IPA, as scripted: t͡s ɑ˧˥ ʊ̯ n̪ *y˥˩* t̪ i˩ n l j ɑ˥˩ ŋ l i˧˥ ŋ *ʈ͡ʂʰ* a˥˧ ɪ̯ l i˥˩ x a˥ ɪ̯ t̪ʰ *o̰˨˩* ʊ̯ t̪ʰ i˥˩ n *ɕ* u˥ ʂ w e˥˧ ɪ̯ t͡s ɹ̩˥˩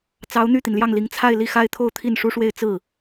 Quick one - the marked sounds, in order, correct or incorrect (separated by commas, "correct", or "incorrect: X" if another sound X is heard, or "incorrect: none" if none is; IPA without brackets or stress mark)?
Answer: correct, incorrect: t͡sʰ, incorrect: o˥˧, incorrect: ʂ